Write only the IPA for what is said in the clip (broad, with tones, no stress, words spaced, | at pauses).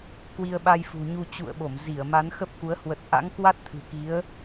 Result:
kwi˧ə̯ɓa˧jfṳ˨˩ɲu˧ t͡ɕṵ˧˨ə̯ɓo˧˩mzi˧˩ə̯ ma˨˦nxə˦˥p̚ku˨˦ə̯ hwə˨˩t̚ʔa̰˧˥ŋkwa˦˥t̚t̪ʰɨ̤˨˩ ki˨˦ə̯